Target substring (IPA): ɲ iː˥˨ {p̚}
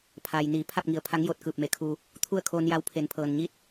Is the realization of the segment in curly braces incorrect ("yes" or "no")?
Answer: yes